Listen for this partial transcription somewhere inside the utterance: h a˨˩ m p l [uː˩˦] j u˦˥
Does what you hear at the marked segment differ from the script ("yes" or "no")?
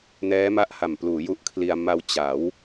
no